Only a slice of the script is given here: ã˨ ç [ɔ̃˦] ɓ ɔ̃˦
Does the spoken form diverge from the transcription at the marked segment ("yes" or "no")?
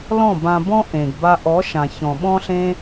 yes